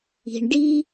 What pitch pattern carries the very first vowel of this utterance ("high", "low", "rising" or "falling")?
low